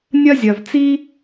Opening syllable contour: high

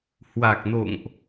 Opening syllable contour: low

